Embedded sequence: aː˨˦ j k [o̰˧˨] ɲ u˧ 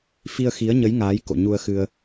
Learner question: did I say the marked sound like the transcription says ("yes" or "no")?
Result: yes